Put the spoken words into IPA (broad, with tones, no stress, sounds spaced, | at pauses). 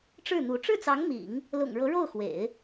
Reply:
ʈ͡ʂ ɻ̩˥˩ n̪ u˧˥ ʈ͡ʂ ɻ̩˥˩ t͡s ɑ˧˥ ŋ m ḭ˨˩˦ ŋ | l ʊ̰˨˩ ŋ ɻ ɤ˧˥ ɻ o˥˩ ʊ̯ x w ḛ˨˩˦ ɪ̯